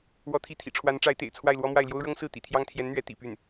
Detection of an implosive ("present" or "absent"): absent